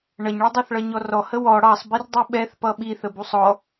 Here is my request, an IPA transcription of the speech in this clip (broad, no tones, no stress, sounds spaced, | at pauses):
ɳ ʌ ɲ ɭ ʌ dˤ ɑ θ ɭ ʌ ɲ ɔ r ɔ h ə w ɔ ɽ ɑ sˤ b i r dˤ u ɓ ɛ θ p ʌ ɓ i θ ə b u sˤ ɔ